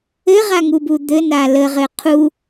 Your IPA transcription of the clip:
ɘʁaŋubu d̪ɘna ləʁɘ qʰu

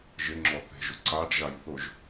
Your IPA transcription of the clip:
ʒɪŋ͡ǁɔ θe̤ʒʊ ǀaɖʒaj θʊʒ

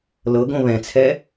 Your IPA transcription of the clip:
lɤɡõ βɛ̃t͡sʰɛ

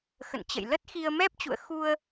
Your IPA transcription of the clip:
xə̰˧˨n t͡ɕə̰˧˨j lə˦˥t̚xi˧ə̯ mɛ˦˥p̚t͡ɕṵ˧˨ə̯ xu˧ə̯

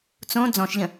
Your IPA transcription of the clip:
t͡sõ d͡zɔ̃ʃʎə̃

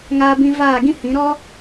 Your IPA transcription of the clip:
ŋaː˧bĩ˧ vaː˦˨ɡĩ˦hĩ˨˦ ɾɔ˦

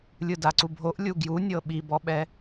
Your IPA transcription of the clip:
lʲɯdaǀubʱoʔ lʲuɡju nʲɤɓibɔɓɛ

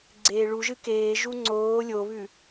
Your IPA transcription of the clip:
ɡ͡ǀeːɭuʒɨ keːʒu ŋ͡ǀoː lʲoβʉ

